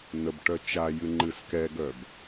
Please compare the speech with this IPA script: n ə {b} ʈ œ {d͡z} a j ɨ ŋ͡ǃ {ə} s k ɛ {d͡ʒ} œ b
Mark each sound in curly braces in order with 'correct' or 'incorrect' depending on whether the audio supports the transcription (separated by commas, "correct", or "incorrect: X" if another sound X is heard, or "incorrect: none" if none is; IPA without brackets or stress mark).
correct, incorrect: t͡ʃ, incorrect: ɨ, incorrect: ɡ